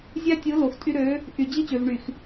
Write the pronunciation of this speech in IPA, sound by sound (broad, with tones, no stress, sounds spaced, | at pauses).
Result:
zʲ æ˦ tʲ ɯ˨˦ l o˨ x tʼ y˦ ɾ ø˨˦ | ʔ y˨ d͡ʑ i˦ t͡ɕ ø˨ v ɳ y˨ x